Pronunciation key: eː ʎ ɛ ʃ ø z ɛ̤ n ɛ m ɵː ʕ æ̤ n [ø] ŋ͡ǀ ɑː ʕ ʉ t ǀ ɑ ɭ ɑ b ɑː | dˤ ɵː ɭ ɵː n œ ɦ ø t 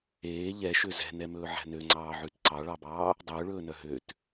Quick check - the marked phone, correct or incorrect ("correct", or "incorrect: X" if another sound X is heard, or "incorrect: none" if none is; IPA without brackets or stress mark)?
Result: correct